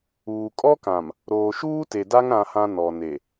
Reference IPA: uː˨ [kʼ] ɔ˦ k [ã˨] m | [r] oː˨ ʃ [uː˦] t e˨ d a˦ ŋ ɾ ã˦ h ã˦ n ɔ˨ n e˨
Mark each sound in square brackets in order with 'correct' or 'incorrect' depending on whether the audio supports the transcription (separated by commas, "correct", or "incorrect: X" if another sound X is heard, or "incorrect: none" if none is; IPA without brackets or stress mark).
correct, correct, incorrect: ɾ, correct